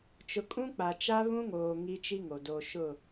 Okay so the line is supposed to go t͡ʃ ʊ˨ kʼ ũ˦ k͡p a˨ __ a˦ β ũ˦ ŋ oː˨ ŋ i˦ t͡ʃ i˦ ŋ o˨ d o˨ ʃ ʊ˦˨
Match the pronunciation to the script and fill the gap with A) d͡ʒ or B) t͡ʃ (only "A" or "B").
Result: B